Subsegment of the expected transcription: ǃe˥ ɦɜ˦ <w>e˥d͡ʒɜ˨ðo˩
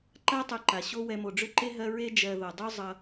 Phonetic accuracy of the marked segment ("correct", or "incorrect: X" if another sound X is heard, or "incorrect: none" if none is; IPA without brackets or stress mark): incorrect: ɹ